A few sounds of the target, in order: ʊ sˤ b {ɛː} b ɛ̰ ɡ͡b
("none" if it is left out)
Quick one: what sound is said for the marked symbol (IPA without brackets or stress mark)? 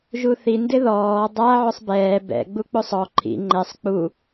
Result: ɛː